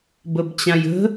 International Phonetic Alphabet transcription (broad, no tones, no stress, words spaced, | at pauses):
bəbt͡ɕãjə̤